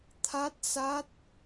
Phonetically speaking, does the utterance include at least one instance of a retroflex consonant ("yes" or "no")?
no